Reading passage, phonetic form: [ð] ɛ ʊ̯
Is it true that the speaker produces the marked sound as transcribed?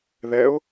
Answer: yes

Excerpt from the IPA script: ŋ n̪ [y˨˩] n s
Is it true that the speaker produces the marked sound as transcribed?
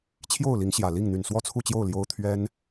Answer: yes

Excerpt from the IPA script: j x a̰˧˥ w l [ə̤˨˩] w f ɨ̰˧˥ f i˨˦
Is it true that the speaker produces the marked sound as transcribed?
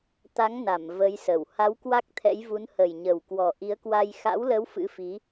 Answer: no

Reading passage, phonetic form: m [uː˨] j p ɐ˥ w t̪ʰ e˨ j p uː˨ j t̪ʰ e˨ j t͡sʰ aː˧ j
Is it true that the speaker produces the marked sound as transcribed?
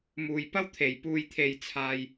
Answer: yes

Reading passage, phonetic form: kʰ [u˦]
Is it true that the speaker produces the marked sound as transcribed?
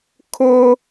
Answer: no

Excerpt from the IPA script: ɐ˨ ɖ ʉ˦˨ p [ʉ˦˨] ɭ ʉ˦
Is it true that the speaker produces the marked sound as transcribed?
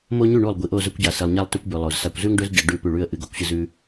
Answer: yes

